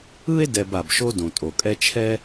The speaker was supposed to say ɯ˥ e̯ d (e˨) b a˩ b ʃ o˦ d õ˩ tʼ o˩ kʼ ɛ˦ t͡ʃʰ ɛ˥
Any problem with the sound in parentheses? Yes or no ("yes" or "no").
yes